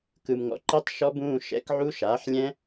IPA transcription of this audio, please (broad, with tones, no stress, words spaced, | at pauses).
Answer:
kɯ˨mŋɔ̰˨ǃi˦˥tˤ ʃɔ˦˥bũː˧˥˧ ʃɛ̰˧˥˧kʕu˦˥ʃaː˩˥ħlʲɛ̃˦˥